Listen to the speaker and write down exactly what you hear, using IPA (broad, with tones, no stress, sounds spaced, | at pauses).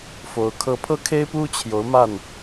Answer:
f o˧˥ ʊ̯ kʰ ɤ˥˧ pʰ ɤ˥˩ kʰ e˥ ɪ̯ p u˥ t͡ɕʰ j o˧˥ ʊ̯ m a˥˩ n